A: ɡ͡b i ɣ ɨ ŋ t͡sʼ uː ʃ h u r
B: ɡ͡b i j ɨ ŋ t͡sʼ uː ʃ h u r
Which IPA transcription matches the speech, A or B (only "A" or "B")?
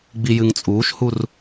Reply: B